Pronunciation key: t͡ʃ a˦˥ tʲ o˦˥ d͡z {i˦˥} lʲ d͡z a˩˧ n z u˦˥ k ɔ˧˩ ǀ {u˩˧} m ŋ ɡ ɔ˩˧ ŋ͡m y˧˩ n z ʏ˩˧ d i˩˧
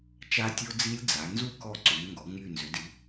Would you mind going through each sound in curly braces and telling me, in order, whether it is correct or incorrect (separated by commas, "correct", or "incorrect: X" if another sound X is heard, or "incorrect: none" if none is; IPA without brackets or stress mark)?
correct, correct